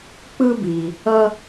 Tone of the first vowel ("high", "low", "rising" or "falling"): high